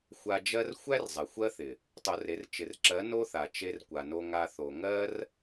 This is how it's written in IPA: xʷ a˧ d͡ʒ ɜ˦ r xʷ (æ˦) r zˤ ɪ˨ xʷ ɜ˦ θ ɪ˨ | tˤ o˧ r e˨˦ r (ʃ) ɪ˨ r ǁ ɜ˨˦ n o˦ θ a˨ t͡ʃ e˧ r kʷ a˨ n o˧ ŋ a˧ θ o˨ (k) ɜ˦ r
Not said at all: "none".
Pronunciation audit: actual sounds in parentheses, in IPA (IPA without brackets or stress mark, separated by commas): æ˦, t͡ʃ, ŋ